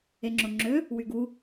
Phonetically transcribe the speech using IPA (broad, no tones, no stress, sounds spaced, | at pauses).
e ŋ͡ǁ o ŋ͡ǁ ø | w y ɡ u